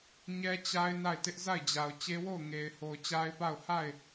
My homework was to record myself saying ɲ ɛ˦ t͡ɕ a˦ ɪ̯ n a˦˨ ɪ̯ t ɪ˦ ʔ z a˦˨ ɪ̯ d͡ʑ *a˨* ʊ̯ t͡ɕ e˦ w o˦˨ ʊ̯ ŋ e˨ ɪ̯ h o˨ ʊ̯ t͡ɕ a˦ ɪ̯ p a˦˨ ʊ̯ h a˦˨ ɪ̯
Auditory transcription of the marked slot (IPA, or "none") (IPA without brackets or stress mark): a˨